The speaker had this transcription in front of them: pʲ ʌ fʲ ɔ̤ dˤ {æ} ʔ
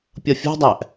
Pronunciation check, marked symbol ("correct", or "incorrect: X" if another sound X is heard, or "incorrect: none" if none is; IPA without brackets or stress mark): correct